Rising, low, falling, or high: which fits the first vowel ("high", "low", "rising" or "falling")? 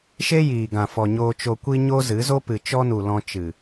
high